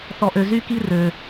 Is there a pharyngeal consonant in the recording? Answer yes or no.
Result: no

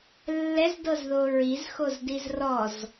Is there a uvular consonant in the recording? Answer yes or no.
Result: no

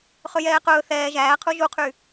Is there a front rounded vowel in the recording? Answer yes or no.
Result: yes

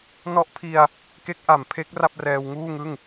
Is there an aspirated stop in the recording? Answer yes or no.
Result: yes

